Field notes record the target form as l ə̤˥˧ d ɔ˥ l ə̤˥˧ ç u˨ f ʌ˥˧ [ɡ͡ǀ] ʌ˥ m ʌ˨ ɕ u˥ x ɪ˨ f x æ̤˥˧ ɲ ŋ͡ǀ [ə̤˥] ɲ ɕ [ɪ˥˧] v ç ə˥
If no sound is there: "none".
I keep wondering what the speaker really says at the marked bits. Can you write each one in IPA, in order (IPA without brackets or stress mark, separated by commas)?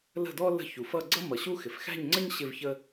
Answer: ɡ͡ǀ, ə˥, ɪ˥˧